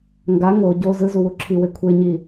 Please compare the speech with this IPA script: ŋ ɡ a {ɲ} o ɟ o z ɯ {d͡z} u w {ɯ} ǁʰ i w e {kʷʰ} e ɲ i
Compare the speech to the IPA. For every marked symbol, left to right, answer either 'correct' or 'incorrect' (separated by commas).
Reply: incorrect, incorrect, incorrect, correct